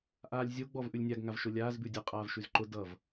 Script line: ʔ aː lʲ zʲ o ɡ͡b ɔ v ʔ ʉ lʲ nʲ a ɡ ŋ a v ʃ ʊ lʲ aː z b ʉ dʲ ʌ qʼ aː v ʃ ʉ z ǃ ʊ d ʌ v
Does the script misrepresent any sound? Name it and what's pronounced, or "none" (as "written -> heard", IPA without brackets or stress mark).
none